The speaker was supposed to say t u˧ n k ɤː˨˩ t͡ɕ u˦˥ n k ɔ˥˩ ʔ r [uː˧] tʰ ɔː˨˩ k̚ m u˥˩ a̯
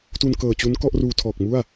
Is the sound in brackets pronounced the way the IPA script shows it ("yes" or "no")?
yes